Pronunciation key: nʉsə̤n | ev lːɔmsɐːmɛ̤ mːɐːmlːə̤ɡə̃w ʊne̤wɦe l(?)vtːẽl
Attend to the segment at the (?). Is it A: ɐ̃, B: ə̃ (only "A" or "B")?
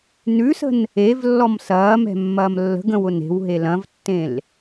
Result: A